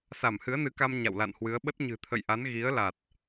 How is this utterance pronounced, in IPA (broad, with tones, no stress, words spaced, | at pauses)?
sa˧˩mhɨ˨˦ə̯nɨ˨˦ka˧m ɲa̰˧˨wla̰˧˨nhwɨ˨˦ə̯ ɓə˦˥t̚ɲɨ̤˨˩t̪ʰə̰˧˨jʔa˨˦n ɣi˨˦ə̯la˨˩t̚